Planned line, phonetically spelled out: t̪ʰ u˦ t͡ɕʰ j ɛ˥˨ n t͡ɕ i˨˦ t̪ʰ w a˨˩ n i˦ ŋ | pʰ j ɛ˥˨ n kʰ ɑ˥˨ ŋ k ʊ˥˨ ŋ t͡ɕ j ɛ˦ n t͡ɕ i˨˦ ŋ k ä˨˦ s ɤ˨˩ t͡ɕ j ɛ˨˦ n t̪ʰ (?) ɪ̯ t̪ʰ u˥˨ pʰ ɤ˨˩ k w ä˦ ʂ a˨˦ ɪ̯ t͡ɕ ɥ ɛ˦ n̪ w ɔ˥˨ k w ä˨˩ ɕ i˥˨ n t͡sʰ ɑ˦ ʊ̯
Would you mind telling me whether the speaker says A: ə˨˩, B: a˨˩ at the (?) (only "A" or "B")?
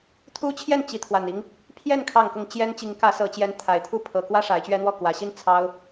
B